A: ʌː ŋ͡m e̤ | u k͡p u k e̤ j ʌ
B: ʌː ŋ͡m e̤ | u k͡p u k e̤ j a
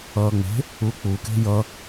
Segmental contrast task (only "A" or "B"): A